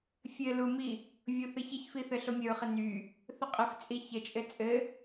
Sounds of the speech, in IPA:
fʲ ɘ l u m i | vʲ o θ ɘ ç ɘ ç f i θ ɘ ɬ o mʲ ə ɹ χ ɘ n y | θ ə qʼ ɘ f t͡sʼ i ç ə t͡ʃʼ ɘ t͡sʼ ɘ

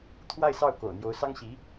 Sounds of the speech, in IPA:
t̪ʰ w a˥˧ ɪ̯ s ɑ˥˩ ʊ̯ k o̰˨˩ ʊ̯ n̪ j o˧˥ ʊ̯ s ɑ˥ ŋ ɕ i˧˥

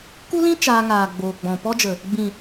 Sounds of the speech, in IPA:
k u˦ l ĩ˦ t͡ʃ aː˧ ŋ aː˨ ɡ͡b oː˨ ɡ͡b ɔ̃˨ p ɔ˦ d͡ʒ ə˨ | ɡ͡b ĩ˨

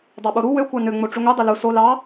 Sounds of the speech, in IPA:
dˤ ɑ ɓ o ɾ u w ø kʷ ɑ n ø ŋ͡m o ʈ͡ʂ y ŋʷ e dˤ e l u s o l ɑ

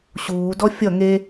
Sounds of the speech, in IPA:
ɕ uː d ɔ fʲ ʌ ŋ e

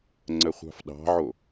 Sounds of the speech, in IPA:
ŋ͡ǀ ə χʷ ɑ̤ f ɗ ɑ̤ ʕ o

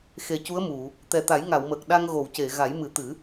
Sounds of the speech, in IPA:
x e˨˩ c u˧˥ ə̯ m u˨˩˨ | t̪ ɛ˨˩ t̪ a˨˩˦ j ŋ a˨˩˨ w m əː˨˩ k̚ ɗ a˧ ŋ ɣ o˨˩˨ w c e˨˩˨ ɣ a˨˩˦ j m ɨ˨˩˦ t̪ ɨ˨˩˦

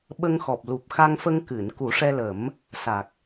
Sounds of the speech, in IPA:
ɓ ə˧ ŋ x ɔ˨˩ p̚ l u˨˩ p̚ x a˧ ŋ f ə˧ ŋ k ɨ˨˩˨ n k u˨˩˦ ʂ ɛ˧ l ə˨˩˦ m | s a˨˩ k̚

